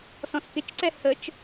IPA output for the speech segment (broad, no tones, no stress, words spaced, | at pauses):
sɔ̃skɪt͡ʃǀɛ hət͡ʃ